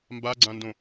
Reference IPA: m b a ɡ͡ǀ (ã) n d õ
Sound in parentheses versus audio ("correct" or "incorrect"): correct